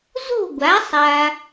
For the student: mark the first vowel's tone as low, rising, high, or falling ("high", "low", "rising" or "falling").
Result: falling